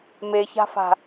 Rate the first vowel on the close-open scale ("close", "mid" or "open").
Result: mid